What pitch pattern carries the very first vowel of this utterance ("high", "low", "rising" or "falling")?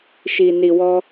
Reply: low